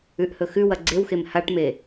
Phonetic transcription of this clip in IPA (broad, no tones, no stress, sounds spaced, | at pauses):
ʉ ʔ h ɵ x ʉ w ɐ ɡ͡ǀ e w x e m h a ʈ m e